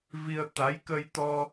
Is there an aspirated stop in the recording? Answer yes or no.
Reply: no